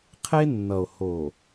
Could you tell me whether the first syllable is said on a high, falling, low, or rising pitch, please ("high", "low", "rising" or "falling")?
high